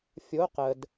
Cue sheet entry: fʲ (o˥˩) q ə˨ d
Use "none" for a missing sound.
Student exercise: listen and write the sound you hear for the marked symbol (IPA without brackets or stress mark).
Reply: o˧˥